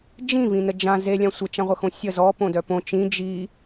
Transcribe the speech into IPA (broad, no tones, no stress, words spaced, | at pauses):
d͡ʒĩvĩnə d͡ʒã zelʲã sʷət͡ʃãʁʷəxõ sʲə zɔpõdœ põ t͡ʃĩ d͡ʒi